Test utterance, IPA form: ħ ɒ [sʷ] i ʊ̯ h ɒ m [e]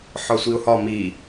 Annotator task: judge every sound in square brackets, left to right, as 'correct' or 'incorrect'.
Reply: correct, incorrect

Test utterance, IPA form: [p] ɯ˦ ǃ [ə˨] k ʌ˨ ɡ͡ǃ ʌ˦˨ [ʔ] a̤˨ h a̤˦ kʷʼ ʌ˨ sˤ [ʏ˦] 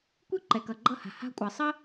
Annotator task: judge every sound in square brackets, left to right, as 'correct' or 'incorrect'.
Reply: incorrect, incorrect, incorrect, incorrect

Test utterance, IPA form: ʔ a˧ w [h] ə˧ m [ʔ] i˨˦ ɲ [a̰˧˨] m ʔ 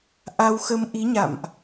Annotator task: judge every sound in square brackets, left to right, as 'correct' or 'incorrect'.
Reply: incorrect, correct, correct

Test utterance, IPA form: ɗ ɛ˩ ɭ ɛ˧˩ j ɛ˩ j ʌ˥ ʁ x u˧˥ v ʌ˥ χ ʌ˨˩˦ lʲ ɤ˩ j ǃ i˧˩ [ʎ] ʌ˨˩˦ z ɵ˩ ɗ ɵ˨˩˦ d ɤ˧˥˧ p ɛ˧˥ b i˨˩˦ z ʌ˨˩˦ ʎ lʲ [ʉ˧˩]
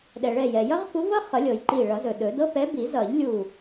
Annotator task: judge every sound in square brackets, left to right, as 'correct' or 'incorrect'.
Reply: incorrect, incorrect

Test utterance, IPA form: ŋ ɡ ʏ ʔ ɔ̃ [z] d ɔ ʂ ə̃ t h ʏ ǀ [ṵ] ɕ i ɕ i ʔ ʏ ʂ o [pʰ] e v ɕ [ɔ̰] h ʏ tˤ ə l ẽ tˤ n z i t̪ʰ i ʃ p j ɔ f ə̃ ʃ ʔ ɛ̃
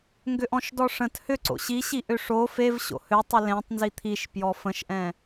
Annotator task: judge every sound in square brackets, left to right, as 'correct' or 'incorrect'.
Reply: incorrect, incorrect, incorrect, incorrect

